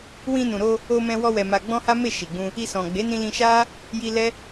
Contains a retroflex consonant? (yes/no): no